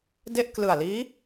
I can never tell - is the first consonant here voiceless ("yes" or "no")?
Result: no